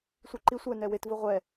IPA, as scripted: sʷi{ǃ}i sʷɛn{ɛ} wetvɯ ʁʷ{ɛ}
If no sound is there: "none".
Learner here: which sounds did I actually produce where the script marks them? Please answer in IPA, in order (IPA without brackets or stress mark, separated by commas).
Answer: ǃ, ɛ, ɛ